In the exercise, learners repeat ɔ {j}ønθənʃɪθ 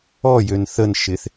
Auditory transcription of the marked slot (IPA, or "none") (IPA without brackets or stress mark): j